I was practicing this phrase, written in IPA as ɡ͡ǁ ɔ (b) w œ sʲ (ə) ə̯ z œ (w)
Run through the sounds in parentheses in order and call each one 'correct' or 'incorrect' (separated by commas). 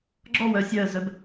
incorrect, incorrect, incorrect